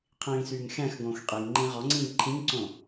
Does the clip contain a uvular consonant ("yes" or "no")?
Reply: yes